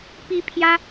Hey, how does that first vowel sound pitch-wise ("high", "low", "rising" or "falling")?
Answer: high